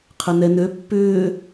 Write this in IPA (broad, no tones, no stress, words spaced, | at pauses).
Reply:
qʰənɛnø pːʏː